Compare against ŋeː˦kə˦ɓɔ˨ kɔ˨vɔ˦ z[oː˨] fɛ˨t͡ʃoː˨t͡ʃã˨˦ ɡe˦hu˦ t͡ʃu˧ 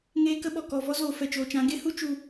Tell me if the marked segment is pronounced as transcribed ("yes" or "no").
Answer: no